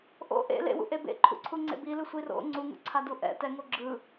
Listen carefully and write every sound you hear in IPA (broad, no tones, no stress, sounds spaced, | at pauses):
ʔ o̰ ʔ ḛ l ḛ w ṵ ʔ e b ḛ ǃʰ ṵ ǀʰ u ŋ͡ǀ ḛ b i l ɯ sʷ i r o̰ ŋ͡ǀ u ŋ ṵ ǀʰ a d u ʔ ɛ̰ t ɛ ŋ o ɡ͡ǁ ɯ